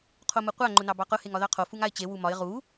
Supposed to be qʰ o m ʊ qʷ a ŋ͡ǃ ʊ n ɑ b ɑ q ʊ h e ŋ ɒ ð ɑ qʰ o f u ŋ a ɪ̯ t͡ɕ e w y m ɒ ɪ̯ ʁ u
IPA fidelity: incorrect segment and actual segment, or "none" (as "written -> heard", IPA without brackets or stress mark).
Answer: y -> u